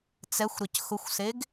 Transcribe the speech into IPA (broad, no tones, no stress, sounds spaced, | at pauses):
t͡s ɛ xʷ ɾ e c x ʊ xʷ s e ɡ